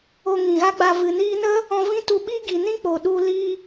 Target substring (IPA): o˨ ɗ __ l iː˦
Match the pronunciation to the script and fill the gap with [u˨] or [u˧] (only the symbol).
u˧